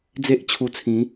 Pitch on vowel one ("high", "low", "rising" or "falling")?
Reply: high